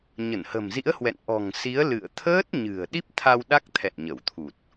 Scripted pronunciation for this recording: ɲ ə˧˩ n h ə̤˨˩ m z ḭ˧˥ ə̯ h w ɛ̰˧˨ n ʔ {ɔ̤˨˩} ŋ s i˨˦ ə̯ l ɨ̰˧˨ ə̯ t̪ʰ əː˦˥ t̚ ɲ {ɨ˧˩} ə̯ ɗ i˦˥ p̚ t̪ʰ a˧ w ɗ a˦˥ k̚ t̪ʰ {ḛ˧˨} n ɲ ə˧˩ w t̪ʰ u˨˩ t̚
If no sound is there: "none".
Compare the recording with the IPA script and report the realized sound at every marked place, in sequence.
ɔ̤˨˩, ɨ̤˨˩, ɛ̰˧˨

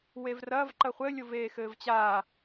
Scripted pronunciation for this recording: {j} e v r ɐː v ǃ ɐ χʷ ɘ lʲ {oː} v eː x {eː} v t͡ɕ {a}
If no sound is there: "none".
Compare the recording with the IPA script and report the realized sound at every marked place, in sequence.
w, o, ɘː, aː

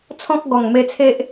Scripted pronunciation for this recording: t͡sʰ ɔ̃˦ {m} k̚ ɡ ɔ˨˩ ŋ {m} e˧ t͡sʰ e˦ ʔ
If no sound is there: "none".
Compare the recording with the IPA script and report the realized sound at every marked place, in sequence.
none, m

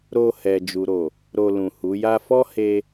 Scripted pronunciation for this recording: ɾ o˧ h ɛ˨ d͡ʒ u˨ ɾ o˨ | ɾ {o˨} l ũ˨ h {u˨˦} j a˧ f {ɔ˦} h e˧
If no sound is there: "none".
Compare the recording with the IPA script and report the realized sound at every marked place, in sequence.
o˧, u˨˦, ɔ˦

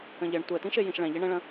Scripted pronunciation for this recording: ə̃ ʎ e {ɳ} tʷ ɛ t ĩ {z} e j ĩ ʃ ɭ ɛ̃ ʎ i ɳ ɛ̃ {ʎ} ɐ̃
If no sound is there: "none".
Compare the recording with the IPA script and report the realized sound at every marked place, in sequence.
ɳ, ʃ, ɭ

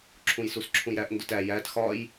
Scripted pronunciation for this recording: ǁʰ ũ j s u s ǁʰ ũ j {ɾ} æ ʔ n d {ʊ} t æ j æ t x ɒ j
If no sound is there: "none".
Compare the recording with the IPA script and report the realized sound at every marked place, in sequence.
ɾ, ʊ

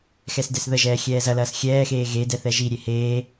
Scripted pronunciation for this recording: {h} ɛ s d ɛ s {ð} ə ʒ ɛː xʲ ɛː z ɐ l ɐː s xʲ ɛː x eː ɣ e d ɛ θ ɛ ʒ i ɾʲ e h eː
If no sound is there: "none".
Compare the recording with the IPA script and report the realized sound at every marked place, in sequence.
x, ð

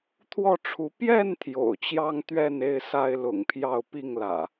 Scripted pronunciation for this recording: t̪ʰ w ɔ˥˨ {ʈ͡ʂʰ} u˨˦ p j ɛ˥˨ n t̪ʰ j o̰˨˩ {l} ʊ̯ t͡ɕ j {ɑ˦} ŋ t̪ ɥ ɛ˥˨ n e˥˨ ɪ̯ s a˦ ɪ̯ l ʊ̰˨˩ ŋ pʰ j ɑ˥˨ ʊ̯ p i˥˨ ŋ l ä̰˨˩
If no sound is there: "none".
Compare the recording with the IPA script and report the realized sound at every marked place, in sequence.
ʈ͡ʂʰ, none, ɑ˦

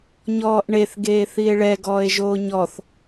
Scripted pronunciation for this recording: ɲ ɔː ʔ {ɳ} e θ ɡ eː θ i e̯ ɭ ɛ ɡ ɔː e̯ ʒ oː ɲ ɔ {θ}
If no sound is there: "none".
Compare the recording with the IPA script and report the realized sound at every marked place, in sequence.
ɳ, θ

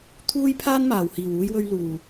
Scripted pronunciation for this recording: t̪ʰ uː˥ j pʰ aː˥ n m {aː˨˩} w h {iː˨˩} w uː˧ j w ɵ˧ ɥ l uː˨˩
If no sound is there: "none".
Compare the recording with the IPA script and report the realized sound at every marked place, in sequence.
aː˨˩, iː˨˩

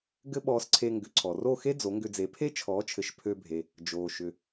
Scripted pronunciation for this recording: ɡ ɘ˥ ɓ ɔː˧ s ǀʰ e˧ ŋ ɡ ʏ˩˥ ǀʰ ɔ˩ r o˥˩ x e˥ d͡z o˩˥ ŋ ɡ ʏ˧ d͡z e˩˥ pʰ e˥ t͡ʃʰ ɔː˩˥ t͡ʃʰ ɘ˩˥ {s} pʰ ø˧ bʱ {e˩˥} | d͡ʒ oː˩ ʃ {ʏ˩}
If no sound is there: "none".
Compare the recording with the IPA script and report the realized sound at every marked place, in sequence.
ʃ, e˩, ʏ˩

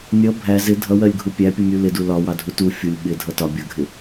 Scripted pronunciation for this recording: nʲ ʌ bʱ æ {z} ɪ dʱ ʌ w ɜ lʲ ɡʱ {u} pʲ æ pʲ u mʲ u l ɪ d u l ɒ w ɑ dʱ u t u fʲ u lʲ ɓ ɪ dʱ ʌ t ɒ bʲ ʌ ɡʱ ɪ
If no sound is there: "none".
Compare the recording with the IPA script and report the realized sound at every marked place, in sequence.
z, u

